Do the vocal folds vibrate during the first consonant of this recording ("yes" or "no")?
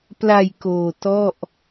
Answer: no